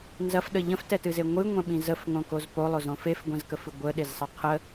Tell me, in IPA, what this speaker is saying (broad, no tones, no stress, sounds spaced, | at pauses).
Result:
n z ɐ f ɗ ə ʎ ə̃ f t ɛ t ɨ z e ŋʷ ɨ ŋʷ ɛ̃ ɓ ĩ z ə f ŋ õ k o z p o lˠ o z õ f e f ɡʷ ɛ̃ z k ə f ɨ ɡʷ ə ɗ e z sˤ ɐ qʰ ə